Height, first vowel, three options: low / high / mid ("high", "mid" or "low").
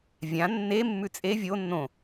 low